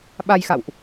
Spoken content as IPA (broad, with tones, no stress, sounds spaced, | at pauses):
ɓ a˧ j x a̰˧˨ w ʔ